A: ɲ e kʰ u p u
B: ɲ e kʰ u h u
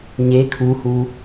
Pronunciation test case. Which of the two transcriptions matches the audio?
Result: B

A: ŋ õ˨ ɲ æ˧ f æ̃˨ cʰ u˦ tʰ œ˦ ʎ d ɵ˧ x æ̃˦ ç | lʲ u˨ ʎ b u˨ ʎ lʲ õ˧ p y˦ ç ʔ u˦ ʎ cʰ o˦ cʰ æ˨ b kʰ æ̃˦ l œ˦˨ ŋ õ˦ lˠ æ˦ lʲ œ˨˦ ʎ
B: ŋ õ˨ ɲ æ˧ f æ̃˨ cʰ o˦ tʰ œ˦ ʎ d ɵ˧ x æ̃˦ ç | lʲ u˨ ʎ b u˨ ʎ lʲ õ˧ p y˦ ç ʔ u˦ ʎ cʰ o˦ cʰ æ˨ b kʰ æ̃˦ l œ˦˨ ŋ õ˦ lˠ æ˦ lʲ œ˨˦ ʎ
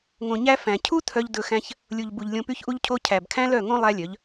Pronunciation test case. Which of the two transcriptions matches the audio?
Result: A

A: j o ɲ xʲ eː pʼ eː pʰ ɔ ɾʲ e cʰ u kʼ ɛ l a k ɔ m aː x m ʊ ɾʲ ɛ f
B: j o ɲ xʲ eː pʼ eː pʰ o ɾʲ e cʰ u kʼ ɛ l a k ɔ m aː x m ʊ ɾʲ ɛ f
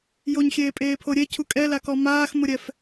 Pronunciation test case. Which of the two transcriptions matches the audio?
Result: B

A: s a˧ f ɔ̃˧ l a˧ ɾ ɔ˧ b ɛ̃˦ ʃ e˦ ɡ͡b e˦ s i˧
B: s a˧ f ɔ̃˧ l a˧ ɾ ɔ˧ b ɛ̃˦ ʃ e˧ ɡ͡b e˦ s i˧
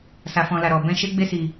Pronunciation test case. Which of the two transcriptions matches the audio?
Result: A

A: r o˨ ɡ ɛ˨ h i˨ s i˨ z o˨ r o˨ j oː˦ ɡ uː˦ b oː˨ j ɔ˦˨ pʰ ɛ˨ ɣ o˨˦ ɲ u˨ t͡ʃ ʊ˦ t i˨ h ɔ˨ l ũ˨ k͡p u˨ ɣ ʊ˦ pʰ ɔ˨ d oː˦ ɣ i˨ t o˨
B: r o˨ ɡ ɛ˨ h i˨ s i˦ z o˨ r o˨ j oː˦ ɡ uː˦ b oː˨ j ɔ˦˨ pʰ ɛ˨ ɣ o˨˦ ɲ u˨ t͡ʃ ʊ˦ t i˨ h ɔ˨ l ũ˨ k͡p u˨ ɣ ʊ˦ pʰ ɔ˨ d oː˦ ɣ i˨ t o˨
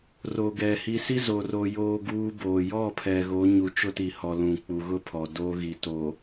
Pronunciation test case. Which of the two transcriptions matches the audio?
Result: B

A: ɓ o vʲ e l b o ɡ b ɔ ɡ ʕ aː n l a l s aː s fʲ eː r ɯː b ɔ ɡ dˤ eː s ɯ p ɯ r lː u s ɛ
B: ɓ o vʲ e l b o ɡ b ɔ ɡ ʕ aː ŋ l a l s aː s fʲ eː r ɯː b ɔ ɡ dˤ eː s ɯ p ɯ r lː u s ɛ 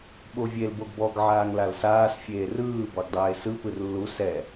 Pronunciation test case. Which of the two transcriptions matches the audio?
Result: B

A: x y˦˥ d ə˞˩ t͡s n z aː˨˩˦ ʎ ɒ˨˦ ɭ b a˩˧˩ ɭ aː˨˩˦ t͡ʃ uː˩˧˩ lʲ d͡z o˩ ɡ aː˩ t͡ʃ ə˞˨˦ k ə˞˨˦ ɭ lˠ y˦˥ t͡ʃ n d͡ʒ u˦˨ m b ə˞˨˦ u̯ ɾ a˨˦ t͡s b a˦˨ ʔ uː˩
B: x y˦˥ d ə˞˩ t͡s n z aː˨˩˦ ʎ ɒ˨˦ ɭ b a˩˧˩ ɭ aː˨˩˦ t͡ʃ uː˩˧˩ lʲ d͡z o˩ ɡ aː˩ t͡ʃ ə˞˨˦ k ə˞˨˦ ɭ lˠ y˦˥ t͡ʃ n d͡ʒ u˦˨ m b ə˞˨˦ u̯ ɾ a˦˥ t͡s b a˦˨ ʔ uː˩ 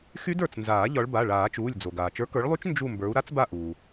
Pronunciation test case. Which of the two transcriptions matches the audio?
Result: B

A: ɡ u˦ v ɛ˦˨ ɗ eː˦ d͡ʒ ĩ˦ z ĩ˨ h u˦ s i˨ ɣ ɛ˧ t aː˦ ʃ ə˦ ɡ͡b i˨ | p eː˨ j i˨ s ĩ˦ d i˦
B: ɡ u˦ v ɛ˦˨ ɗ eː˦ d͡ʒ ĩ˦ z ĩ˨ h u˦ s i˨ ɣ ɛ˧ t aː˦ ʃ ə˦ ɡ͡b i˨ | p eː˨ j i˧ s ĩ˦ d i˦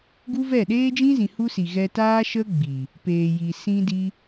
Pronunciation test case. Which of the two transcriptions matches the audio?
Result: A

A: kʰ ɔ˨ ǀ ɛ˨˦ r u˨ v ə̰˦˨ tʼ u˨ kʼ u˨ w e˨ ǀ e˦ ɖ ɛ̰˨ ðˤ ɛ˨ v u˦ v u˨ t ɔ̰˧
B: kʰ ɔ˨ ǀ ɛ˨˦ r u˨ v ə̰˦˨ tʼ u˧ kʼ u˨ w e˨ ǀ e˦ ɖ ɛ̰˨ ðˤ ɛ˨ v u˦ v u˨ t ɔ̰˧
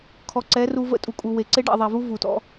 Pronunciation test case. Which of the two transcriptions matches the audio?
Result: A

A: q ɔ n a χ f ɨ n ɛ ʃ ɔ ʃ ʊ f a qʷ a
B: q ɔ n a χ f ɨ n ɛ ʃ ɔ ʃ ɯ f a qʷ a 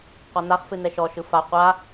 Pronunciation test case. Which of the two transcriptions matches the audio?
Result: B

